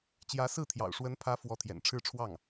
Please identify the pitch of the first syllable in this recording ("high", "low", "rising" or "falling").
rising